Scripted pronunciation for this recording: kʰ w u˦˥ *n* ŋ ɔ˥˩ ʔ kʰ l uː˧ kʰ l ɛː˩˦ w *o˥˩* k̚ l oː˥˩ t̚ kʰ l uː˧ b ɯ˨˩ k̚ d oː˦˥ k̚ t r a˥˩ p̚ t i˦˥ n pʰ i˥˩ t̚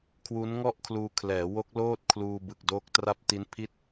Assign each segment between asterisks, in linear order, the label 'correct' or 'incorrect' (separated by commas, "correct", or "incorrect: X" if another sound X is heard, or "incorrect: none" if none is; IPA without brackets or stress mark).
correct, incorrect: o˦˥